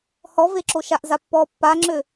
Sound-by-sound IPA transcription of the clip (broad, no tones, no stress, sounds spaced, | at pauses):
h ɔ v e ǁ o ʃ a ʔ z a pː ɔ pː a ŋ͡ǁ ø